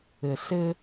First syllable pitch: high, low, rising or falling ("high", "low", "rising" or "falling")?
low